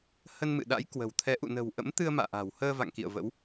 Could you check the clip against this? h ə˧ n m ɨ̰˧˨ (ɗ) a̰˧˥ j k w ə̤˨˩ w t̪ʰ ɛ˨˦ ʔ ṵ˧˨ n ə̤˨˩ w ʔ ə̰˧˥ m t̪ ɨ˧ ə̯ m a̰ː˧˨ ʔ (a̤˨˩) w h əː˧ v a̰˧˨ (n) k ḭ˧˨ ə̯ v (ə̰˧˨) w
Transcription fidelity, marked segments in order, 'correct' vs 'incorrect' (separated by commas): correct, correct, incorrect, incorrect